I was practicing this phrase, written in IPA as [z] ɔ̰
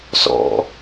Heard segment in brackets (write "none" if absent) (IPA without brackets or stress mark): s